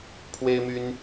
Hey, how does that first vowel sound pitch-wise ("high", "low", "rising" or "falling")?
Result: high